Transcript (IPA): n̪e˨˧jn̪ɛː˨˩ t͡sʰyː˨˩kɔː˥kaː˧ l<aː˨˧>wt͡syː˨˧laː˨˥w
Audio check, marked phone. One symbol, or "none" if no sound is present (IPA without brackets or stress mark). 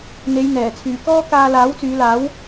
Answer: aː˨˥